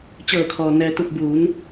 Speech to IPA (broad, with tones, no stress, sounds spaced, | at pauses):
t͡ɕ ɤː˧˩ kʰ ɔː˩ n ɛː˩ t̪ u˧˩ p̚ b uː˩˧ n